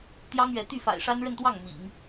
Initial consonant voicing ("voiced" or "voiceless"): voiceless